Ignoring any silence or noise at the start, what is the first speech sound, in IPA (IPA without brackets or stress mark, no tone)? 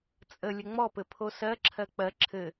t͡sʼ